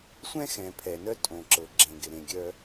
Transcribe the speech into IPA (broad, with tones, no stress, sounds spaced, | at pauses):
sʷ ɛ̃˥ x ɛ̃˩ pʰ ɛ˩ n œ˥ tʼ õ˩ ǁ ɤ˩ ɡ͡ǁ ẽ˩ ɡ ɪ˩ ɾ ẽ˩ ɡʲ œ˥